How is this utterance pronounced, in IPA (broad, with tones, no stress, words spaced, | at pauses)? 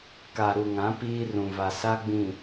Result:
ka˨ɾu˨ŋã˨˦ piː˦ rũ˨va˨ sa˦ɡ͡bĩ˨